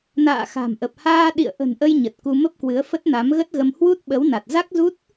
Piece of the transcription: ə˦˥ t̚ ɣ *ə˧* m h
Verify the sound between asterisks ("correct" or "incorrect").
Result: correct